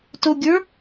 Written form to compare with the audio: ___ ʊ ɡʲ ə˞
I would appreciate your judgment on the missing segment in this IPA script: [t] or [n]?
t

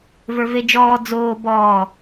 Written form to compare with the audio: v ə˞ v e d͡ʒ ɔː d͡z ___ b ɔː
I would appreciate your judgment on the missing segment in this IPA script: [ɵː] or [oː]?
oː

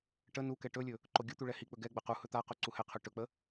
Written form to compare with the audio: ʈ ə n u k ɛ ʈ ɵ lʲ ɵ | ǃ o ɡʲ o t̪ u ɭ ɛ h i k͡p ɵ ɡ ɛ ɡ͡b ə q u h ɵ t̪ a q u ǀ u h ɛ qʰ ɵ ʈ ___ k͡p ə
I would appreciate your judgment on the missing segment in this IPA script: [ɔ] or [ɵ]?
ɵ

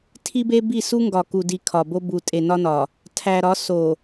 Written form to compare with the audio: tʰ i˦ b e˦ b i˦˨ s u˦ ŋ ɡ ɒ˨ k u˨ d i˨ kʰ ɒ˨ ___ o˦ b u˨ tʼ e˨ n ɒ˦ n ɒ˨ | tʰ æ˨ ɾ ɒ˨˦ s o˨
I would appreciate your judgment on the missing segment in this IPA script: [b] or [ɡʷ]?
b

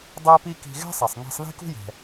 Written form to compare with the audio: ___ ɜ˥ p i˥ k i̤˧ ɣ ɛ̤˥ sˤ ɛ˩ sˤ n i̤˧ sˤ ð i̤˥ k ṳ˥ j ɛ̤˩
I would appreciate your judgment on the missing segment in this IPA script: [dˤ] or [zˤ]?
dˤ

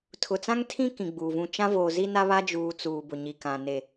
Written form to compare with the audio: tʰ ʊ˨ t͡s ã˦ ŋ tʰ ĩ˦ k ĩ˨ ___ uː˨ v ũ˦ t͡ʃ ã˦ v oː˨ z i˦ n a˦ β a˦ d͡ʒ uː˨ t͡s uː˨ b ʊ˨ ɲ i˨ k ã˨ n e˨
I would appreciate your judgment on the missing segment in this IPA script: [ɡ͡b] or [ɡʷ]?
ɡ͡b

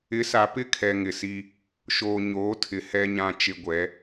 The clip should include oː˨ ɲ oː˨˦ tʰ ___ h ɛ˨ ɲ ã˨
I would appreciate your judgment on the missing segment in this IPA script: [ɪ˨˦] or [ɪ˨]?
ɪ˨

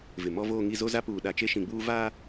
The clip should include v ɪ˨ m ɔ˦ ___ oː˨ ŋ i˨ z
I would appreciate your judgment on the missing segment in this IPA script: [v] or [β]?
v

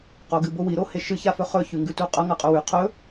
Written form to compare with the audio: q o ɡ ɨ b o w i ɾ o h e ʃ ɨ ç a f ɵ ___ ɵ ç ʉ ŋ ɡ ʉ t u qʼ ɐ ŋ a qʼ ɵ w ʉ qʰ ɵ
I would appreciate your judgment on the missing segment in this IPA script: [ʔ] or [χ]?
χ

